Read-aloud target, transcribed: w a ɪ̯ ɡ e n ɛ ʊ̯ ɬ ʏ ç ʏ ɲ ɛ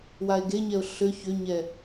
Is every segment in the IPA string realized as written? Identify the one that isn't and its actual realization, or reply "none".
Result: n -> ɲ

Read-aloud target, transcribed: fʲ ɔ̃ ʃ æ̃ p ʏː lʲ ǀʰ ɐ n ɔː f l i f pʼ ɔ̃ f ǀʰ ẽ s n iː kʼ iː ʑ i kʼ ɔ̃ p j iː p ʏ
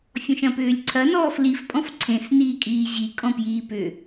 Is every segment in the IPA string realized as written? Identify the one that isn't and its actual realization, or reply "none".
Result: æ̃ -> ɐ̃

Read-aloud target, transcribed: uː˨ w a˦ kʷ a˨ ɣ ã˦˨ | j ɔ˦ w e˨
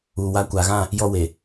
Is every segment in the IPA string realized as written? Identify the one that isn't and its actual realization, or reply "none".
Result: none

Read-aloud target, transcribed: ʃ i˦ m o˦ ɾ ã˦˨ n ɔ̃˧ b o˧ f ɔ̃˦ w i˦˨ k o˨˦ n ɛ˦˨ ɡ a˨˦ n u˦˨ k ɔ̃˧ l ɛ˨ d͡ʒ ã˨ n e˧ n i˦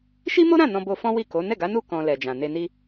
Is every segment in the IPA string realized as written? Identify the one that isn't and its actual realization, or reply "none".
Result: none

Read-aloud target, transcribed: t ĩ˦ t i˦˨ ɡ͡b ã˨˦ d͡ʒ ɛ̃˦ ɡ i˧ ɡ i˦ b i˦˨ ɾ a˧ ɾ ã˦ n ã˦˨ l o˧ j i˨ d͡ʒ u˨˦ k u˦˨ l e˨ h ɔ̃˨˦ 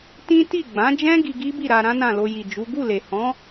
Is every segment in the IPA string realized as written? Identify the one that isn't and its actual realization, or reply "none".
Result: k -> ɡ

